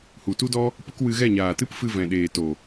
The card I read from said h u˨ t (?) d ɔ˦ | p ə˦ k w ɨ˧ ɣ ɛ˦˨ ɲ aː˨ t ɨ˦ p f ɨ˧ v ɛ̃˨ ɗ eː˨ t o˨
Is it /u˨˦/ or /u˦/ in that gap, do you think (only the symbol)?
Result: u˦